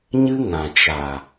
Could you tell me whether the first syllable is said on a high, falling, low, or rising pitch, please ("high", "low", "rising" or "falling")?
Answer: high